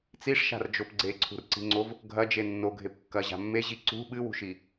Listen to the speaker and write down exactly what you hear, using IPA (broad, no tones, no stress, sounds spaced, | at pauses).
t͡s i ʂ ʃ a̤ r d͡ʒ o p ɡ͡ǀ e ǀʰ ṳ r ǀ i̤ ŋ͡ǀ o v | ɡʱ ɐ d͡ʒ e nː o ɡʱ e p kː ɐ ʑ a̤ mː e ʑ i ǀ ṳ ɓ ɨ w ṳ ʃ i